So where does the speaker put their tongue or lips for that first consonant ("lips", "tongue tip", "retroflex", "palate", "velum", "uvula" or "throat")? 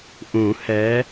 throat